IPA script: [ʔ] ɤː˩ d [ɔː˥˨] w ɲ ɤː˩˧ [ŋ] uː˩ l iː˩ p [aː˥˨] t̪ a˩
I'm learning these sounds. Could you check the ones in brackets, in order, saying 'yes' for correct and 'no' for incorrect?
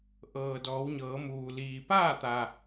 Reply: yes, no, no, yes

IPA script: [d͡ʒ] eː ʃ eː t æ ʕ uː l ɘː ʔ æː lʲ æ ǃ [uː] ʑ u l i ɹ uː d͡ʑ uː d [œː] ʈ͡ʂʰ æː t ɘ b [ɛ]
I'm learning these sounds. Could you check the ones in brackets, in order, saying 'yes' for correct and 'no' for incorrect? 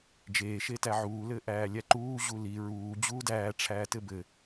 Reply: yes, yes, no, no

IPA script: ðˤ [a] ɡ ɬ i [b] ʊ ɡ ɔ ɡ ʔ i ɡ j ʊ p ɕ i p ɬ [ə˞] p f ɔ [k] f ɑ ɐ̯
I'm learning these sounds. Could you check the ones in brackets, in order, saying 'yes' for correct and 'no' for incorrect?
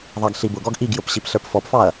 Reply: no, yes, yes, no

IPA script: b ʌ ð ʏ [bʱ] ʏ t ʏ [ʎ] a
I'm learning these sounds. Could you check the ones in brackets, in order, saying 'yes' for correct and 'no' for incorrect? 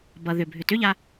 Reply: yes, yes

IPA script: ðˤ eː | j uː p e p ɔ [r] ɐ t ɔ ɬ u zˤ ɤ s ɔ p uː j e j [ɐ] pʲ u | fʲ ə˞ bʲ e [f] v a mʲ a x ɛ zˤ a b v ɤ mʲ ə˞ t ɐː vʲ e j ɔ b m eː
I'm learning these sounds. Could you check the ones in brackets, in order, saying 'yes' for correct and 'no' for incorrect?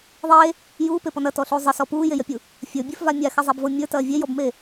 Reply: no, yes, yes

